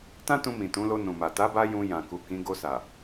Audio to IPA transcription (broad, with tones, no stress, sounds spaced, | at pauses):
t ã˦ t ũ˧ m ĩ˨ t ũ˨˦ l o˧ n ũ˨ m a˨ t a˨˦ b a˧ j ũ˧ j ã˨ k u˨ k ĩ˨˦ ɡ o˧ s a˨